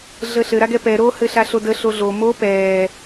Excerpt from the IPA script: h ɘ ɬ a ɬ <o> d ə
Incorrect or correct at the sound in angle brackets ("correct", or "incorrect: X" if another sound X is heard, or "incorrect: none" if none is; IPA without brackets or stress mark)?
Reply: correct